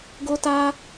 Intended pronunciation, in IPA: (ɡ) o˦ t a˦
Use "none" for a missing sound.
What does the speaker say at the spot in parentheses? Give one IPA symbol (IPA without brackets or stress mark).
ɡ